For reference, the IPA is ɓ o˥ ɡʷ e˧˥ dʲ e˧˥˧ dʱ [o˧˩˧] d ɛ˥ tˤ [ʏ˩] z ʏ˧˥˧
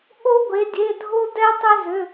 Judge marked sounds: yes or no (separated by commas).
no, no